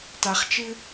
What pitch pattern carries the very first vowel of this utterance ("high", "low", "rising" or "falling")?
low